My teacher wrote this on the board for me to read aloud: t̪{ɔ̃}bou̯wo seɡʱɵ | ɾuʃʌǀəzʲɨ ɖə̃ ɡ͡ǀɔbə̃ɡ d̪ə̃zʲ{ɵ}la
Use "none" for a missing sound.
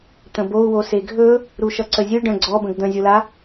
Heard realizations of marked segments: ə̃, o

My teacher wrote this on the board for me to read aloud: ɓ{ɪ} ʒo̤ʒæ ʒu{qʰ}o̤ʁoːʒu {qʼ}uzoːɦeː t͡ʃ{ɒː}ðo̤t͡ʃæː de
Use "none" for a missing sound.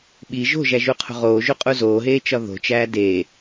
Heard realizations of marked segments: i, qʰ, qʼ, ɒ

